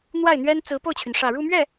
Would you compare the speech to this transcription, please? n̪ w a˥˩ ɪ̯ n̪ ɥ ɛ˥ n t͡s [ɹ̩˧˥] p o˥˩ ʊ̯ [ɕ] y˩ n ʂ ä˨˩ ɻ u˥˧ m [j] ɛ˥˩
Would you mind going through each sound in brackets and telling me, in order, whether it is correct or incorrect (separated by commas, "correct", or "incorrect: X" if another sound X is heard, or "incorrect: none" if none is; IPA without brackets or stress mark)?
correct, incorrect: t͡ɕʰ, incorrect: ɥ